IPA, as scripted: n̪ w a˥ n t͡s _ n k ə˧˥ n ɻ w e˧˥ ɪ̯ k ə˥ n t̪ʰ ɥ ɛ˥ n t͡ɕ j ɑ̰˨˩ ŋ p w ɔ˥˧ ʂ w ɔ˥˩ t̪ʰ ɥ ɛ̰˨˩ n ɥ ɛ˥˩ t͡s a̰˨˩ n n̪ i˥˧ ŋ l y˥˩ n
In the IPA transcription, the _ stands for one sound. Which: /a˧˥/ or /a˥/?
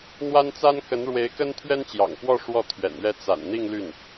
a˥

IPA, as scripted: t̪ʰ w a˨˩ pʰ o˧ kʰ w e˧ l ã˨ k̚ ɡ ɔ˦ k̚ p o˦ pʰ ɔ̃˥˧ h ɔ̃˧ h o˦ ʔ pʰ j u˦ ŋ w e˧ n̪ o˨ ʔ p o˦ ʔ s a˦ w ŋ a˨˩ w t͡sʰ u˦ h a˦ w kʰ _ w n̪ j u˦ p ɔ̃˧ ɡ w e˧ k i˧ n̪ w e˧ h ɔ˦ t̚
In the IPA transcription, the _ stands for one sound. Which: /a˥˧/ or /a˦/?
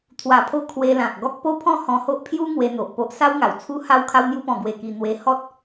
a˦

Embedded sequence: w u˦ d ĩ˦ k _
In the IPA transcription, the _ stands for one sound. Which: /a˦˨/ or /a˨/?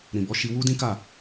a˦˨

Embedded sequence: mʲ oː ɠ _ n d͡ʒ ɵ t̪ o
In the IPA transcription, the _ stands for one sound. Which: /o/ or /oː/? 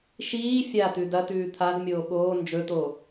oː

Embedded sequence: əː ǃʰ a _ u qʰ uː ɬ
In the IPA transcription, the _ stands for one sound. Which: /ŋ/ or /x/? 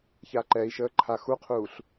x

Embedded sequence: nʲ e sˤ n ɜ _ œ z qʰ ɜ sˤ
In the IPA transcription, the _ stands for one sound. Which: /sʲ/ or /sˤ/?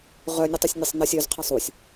sʲ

